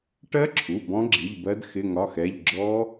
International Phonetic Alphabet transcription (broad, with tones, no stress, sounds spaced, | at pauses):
ʈ ɜ˦˥ ǁʰ u˩˧˩ b ɔ̃˦˥ ɡ͡ǁ i˩˧˩ ʎ b ɜ˦˥ d x ɪ˧˥˧ ŋ ɒ˧˥˧ x ɛ˧˥˧ ʎ ɡ͡ǁ ɔ˦˥